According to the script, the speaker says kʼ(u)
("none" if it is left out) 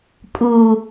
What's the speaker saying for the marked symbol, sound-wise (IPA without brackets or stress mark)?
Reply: u